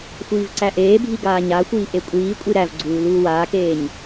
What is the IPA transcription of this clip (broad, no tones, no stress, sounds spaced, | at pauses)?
xʷ iː v ǀ æ ʔ eː bʱ i ɡ aː ɲ a xʷ iː ʔ e kʷʼ iː kʷʼ i ɾ æ v ɡ͡ǀ uː l uː w aː k eː ɲ